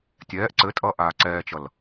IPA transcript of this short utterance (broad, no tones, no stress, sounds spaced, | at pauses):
tʲ ɛː ʔ ǀ ɘ tʼ ʌ ʔ aː ǀ ɛː t͡ʃ ʌ l